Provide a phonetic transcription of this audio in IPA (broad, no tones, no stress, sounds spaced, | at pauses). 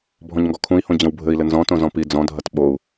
bʱ ɔ̃ ɲ ŋ ɡ ɔ kʰ ũ i̯ h õ d͡ʑ ɐ̃ w bʱ ɘ i̯ l ɘ n z ɔ̃ t õ z ɔ̃ p i d͡z ɔ̃ dʱ ɐ t ɓ o u̯